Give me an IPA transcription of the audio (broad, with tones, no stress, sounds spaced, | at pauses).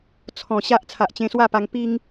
t͡sʰ ɔ̃˨˩ ɕ a˦ ʔ t͡sʰ a˨ ʔ t͡ɕ ẽ˧ s w a˥˧ p a˧ ŋ p i˧ ŋ